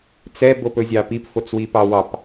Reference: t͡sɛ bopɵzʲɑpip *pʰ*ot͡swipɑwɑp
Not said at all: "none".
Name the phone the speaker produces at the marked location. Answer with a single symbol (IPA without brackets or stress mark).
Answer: f